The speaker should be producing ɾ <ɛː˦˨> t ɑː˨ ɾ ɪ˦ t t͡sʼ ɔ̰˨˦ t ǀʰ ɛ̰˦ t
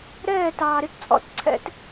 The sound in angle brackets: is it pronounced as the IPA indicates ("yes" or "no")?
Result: yes